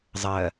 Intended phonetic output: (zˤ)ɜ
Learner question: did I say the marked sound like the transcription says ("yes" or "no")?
yes